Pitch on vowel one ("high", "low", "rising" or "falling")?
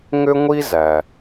high